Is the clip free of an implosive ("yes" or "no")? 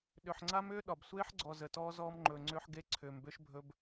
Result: no